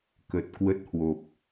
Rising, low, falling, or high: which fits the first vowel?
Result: low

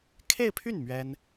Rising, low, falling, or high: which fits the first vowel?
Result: falling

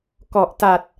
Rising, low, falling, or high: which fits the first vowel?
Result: low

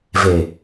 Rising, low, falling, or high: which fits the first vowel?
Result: low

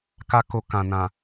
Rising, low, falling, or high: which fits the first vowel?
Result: high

